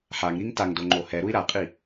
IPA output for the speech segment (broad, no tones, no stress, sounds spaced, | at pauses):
ħ a ŋ ɾ i ŋ t a ŋ d o ŋ͡ǃ o h ɛ ɾ u i̯ ɾ a qʼ i